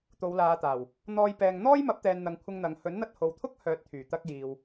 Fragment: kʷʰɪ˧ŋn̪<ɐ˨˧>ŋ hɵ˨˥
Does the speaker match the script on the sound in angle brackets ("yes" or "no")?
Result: yes